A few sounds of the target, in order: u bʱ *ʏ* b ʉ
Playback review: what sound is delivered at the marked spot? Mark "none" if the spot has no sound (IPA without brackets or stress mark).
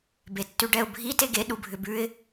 ʏ